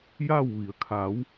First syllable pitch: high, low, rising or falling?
falling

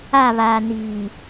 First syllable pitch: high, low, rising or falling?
falling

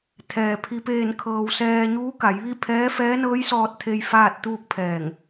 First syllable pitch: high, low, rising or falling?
low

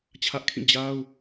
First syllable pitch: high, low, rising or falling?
high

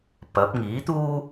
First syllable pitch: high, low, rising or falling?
rising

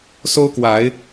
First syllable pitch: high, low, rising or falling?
high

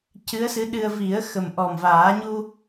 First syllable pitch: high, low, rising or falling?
rising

